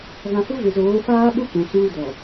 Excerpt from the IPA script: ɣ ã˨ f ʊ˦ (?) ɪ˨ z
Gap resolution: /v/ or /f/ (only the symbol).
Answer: v